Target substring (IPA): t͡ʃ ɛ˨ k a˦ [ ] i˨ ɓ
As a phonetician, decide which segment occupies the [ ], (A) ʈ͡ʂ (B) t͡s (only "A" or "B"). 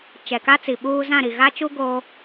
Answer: B